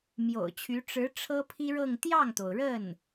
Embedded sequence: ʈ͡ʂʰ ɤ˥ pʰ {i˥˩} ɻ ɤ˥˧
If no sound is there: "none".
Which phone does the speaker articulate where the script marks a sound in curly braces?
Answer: i˥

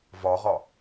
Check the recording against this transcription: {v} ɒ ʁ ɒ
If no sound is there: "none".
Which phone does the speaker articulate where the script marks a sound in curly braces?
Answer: v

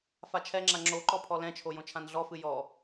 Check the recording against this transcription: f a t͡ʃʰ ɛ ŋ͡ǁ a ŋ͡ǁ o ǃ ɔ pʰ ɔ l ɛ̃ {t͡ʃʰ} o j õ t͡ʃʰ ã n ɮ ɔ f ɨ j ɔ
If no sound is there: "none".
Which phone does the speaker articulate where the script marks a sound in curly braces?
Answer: t͡ʃʰ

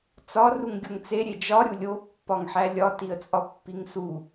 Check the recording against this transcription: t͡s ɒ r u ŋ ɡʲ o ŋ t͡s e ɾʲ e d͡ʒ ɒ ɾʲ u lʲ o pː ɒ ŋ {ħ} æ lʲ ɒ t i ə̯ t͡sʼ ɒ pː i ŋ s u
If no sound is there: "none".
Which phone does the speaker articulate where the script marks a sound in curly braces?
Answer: ħ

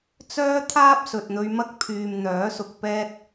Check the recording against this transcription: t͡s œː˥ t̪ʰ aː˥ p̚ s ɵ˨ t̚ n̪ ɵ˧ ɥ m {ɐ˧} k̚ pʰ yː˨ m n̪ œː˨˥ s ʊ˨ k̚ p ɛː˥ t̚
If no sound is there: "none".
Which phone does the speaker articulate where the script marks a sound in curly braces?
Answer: ɐ˥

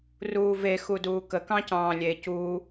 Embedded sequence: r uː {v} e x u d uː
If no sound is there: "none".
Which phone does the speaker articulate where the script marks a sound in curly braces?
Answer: v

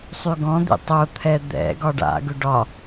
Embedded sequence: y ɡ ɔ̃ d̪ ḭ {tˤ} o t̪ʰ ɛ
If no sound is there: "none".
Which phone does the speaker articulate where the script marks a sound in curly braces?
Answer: tˤ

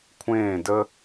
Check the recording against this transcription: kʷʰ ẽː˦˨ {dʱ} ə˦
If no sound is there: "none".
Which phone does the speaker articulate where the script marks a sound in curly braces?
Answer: d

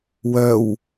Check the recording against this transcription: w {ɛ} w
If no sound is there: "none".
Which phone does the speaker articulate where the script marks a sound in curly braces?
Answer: œ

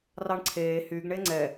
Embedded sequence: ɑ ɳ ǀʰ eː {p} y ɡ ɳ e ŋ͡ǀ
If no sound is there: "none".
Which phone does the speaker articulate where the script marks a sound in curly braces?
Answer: h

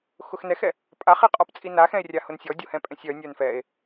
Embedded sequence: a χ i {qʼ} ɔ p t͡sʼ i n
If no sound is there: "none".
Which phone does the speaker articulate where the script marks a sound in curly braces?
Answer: qʼ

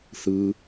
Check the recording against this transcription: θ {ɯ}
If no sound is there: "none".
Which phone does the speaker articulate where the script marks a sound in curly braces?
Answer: ɯ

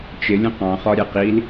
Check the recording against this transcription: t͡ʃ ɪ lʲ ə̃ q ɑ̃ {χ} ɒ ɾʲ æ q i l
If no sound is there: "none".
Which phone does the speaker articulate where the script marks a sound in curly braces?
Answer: χ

